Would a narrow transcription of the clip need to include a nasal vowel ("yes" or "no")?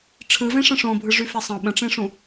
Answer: yes